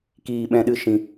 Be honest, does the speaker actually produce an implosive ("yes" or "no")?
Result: yes